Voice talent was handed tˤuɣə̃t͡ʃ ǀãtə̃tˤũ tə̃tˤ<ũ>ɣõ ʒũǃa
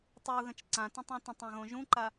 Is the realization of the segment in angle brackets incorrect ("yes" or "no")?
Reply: yes